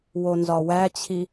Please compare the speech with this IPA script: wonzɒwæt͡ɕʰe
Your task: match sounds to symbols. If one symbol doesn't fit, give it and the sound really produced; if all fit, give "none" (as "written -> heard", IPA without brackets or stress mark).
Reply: e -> i